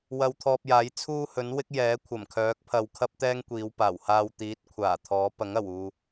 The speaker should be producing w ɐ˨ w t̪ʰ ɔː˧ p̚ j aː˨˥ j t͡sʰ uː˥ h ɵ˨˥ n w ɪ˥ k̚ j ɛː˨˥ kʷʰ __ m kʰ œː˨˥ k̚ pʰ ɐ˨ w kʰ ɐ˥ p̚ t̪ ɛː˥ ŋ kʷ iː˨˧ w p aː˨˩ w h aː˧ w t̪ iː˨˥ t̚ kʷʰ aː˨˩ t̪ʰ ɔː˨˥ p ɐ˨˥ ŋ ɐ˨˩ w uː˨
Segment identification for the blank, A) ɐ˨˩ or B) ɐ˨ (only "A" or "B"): A